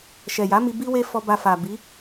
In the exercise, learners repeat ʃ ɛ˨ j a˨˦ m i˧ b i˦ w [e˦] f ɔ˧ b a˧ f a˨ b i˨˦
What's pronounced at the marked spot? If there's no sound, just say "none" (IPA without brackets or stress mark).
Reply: e˦